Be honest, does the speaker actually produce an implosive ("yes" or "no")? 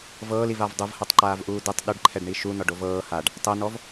yes